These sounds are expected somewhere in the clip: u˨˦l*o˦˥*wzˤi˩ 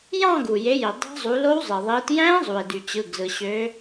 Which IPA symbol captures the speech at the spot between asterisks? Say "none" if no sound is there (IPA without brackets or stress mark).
o˦˥